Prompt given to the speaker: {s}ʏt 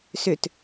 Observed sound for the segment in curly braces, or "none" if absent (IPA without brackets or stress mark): s